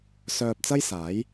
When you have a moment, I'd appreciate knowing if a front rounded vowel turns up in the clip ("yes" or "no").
yes